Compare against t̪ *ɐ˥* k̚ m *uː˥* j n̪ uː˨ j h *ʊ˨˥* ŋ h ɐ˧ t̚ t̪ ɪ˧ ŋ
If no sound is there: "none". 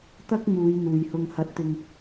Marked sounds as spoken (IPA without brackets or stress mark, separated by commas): ɐ˥, uː˨˧, ʊ˧